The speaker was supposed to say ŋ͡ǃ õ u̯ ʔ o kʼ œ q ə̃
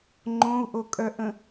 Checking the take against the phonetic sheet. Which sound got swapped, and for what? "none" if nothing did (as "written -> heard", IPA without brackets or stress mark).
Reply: q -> ʔ